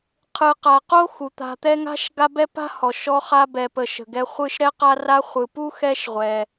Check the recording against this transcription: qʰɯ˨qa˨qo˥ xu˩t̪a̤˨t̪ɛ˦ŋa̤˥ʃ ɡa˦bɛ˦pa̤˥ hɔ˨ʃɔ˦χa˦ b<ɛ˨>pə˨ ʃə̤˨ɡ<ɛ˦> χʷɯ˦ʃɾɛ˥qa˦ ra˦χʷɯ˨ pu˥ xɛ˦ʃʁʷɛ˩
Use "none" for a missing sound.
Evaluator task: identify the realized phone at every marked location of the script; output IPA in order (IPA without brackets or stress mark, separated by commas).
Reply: ɛ˨, ɛ˦